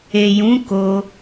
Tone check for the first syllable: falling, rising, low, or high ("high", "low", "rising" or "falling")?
low